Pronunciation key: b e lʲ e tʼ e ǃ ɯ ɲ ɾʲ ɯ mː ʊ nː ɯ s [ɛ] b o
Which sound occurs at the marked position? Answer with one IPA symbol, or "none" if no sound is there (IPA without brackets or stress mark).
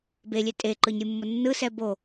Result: ɛ